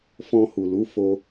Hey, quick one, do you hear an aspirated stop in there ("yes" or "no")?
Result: no